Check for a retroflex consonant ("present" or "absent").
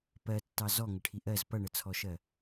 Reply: present